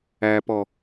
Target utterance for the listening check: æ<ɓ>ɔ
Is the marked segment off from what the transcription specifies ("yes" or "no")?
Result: yes